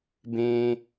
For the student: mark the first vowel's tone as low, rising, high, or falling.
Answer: low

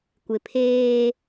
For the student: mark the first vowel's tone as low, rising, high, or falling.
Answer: low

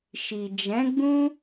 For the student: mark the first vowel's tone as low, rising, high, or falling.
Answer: low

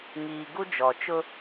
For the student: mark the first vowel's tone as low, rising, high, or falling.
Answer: low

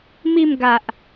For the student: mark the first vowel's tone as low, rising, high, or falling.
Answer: falling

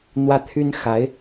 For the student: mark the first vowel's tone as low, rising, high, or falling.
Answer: high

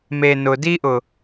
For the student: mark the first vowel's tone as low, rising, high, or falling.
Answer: low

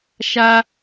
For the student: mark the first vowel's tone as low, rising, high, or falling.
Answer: high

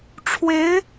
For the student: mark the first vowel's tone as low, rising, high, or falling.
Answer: rising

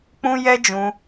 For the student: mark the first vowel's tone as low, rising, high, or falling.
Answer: high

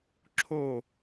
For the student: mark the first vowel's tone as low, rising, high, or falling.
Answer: falling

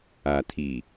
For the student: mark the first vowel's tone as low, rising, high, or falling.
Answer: low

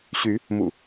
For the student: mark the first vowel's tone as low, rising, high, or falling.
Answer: rising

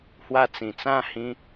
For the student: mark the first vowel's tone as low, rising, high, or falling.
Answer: falling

